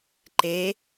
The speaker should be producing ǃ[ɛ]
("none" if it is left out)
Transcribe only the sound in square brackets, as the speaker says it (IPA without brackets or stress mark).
e